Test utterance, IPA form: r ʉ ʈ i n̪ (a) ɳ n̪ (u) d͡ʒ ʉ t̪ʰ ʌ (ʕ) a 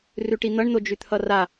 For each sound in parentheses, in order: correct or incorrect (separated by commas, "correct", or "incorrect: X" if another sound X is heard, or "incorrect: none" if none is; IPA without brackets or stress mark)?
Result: incorrect: ʌ, incorrect: o, incorrect: r